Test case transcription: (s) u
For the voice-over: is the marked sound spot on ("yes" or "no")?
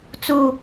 no